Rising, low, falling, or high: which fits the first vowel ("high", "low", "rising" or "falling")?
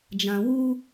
low